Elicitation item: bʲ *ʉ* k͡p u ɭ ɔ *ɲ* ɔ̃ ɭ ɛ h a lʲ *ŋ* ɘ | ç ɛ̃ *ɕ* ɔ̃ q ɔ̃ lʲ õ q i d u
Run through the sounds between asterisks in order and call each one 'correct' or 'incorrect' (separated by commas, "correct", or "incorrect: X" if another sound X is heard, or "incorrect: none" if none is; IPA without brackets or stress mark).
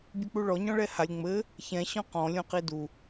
correct, correct, incorrect: ŋ͡m, correct